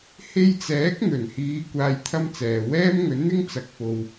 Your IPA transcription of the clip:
h e˧ j t͡s ɛː˨˥ k̚ n̪ ɵ˨˩ n h iː˨˧ kʷ aː˧ j t̪ʰ ɐ˥ m t͡s ɛː˨ w ɛː˥ m ŋ ɵ˨˥ n n̪ ɪ˥ ŋ t͡s ɐ˨ k̚ f o˨ w

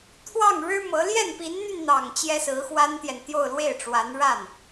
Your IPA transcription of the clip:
t̪ʰ w ɑ˥˩ ŋ ɻ ɻ̩˥ m ɤ˧˥ l j ɛ˥˩ n p i˧˥ n n̪ y˧ n n̪ ɑ˨˩ ŋ t͡ɕ j ɛ˥ s ɹ̩˧˥ x w a˥ n t̪ j ɛ˨ n t̪ j o˥˧ ʊ̯ l w e˥˩ ɪ̯ ʈ͡ʂ w a˧˥ n ɻ a˥˩ n

